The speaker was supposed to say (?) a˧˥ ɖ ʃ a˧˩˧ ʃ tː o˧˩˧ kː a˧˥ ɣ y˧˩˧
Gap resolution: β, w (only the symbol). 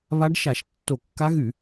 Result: β